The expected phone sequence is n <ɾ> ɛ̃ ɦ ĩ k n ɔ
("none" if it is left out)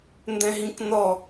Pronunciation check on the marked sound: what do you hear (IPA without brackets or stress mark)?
d